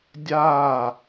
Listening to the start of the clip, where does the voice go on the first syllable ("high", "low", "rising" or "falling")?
falling